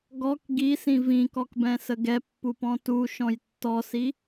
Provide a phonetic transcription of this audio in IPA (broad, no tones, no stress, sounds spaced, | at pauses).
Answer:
ɡ ɔ k ɡ i s ĩ v ĩ k ɔ k b ɛ̃ s ə ɡ ɛ pː u p ɔ̃ t u ʃ ɔ̃ j tː ɔ s i